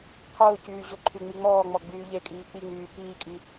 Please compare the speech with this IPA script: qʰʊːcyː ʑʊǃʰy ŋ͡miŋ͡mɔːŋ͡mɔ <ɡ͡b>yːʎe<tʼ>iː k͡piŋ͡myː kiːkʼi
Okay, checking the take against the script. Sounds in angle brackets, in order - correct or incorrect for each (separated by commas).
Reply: correct, incorrect